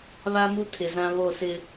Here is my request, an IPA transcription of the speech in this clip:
β a˦ m u˦ tʰ ɪ˨ z ã˦ β o˦˨ s ɪ˦

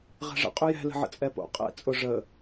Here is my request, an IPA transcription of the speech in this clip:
ʁ ɛ̤ ʐ ə̰ qʼ ʏ j ɛ̤ l ə̤ ʕ ə̰ t͡sʼ ɛ p o̰ qʼ ɛ̰ t͡sʼ ʊ ʐ ə

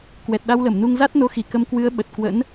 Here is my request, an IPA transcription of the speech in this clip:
k w ɛ˨˩ t̚ ɗ a˧ w l ə˧˩ m n u˧ ŋ z a˦˥ t̚ n o˧ x i˧˩ k ə˧ m k w ɨ˨˦ ə̯ ɓ ə˨˩ t̚ k w ə̰˧˥ n

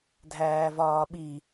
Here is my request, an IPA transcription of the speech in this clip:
dʱ æː v ɒː ɓ i

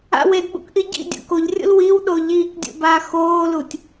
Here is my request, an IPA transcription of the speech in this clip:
a̰ w e d ɓ ṵ k ʔ i ɟ ḭ dʲ ṵ k o ʎ rʲ ṵ l w i w ɗ o ʎ iː k dʲ ṵ b aː x oː l u tʲ

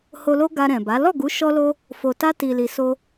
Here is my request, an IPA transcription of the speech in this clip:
h o˧ l o˦ ɡ a˧ ɾ ɛ̃˨ b a˨˦ l ɔ˦˨ ɡ u˨˦ ʃ ɔ˧ l o˧ | f o˨ t a˧ t i˨ l i˨ s o˧

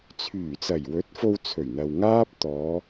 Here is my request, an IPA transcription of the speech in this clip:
t͡sʰ yː˨˩ t͡s ɐ˨˩ j w ɵ˨˥ t̚ f o˧ w t͡sʰ ɵ˨˩ ɥ n̪ ɐ˨ w ŋ aː˥ p̚ t̪ ɔː˨˧

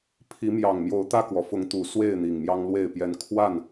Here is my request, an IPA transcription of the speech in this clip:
pʰ i˨˦ m j ɑ˨˩ ŋ m j o˨˦ ʊ̯ t̪ ä˧ k w ɔ˩ f ʊ˨˦ ŋ t̪ u˨˩ s w e˥˨ ɪ̯ n̪ i˨˩ ŋ m j ɑ˦ ŋ l w e˥˨ ɪ̯ p j ɛ˦ n kʰ w a˥˨ n

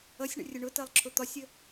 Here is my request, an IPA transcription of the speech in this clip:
ʌ sʲ ɳ ə̰ rʲ ʊ ɳ ʊ t ɜ lˠ ǁʰ ʊ t̪ ɒ sʲ ə

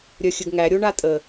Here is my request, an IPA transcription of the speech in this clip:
ɾʲ œ xʲ ɘ ɡ ŋ æ ɾʲ o ɳ a tʼ ə

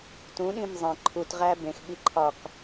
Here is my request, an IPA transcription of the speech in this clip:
t ũ ɗ ĩ m zˤ ẽ ǃʰ u t ʁ æ b ẽ x ɓ i ǃʰ ɒ k

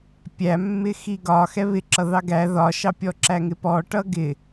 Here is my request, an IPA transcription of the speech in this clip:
pʲ æ mː ɪ x i ɡ ɒ x ɛ β ɪ ǁ ʌ ð ɑ ɡ æ ð ɒ ʃ ɑ pʲ ɔ ǁ æ ŋ ɪ p ɔ ʈ ʌ ɡ ɪ

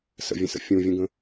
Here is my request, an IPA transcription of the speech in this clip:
s ə̰ vʲ ə̃ s ə̰ fʲ ũ vʲ ũ ɡ ə̃

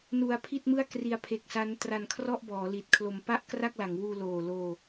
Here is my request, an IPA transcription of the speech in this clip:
n u˧ a̯ pʰ i˥˩ t̚ m ɯ˥˩ a̯ k r i˧ a̯ pʰ e˨˩ k̚ s a˦˥ n t r a˧ n kʰ r ɔ˥˩ ʔ b ɔː˩˦ l i˨˩ t̚ kʰ l o˧ m p a˥˩ ʔ k r a˥˩ k̚ l a˩˦ ŋ w uː˧ l oː˨˩ l oː˧

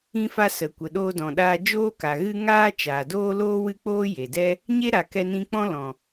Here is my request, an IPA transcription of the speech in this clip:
ĩ˧ f a˧ s ə˨ kʷ ə˨ ɗ oː˧ d ɔ̃˨ ɗ aː˧ d͡ʒ oː˧ k a˨ ɣ ɨ˧ ŋ aː˦ t͡ʃ aː˨ d oː˦ l oː˦ w ɨ˦ k͡p oː˦ j e˨ d ɛ˦ | ɲ e˦ ɾ a˨ k ɛ˧ n ĩ˧ k͡p ɔ̃˦ l ɔ̃˨

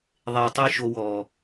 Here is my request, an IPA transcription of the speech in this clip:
ðˤ e˨ ʊ̯ tˤ i˧ ʃ o˧ w ɔ˨

